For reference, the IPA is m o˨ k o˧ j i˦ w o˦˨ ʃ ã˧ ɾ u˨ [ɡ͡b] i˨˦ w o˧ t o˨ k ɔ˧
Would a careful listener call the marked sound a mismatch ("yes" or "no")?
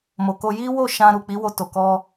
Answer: yes